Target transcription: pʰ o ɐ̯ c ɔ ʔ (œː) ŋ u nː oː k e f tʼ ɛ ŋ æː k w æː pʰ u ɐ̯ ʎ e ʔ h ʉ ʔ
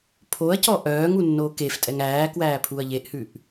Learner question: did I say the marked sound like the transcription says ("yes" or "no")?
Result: yes